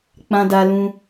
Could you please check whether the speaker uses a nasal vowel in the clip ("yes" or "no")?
yes